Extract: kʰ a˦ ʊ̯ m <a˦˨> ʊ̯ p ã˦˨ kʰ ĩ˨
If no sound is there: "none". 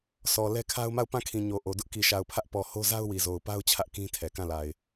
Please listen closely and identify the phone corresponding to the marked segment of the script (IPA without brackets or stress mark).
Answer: a˦˨